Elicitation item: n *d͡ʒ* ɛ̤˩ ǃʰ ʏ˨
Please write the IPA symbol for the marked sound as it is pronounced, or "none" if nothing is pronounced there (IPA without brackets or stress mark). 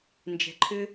d͡ʒ